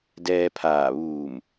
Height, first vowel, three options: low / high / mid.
mid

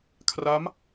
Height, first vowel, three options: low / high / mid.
low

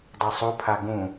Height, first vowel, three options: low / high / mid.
low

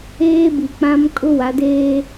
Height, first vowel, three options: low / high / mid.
mid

